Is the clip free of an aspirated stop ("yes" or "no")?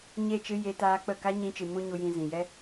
yes